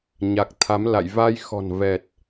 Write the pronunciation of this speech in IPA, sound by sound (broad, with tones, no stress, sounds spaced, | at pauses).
ɲ a˨˩ k̚ t̪ʰ a˨˦ m l a̰˧˨ j v a˧ j x ɔ̤˨˩ n v ɛ˨˩ t̚